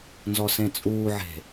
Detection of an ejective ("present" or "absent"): present